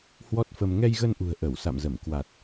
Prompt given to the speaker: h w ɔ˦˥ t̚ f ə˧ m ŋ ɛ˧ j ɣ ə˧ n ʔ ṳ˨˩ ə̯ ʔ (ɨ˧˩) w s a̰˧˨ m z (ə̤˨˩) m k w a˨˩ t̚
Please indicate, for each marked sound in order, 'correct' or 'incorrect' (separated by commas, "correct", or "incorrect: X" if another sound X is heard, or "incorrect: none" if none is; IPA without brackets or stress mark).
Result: incorrect: ə˧˩, incorrect: ə˧˩